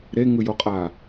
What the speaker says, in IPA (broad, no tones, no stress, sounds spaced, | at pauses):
ɾ e ŋ ɯ j o qʼ a